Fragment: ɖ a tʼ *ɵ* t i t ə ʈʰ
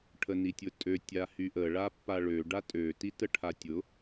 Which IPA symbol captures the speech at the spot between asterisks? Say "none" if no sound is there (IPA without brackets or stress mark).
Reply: ø